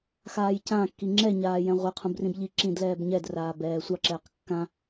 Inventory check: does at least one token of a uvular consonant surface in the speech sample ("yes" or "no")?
yes